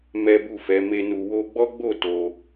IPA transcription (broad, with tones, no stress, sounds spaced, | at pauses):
m ɛ˦ b u˦˨ f ɛ˨˦ m e˦ n u˧ w o˧ ɡ͡b ɔ˦ ɡ͡b o˦˨ t o˧